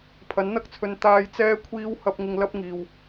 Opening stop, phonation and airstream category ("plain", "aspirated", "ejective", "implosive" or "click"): aspirated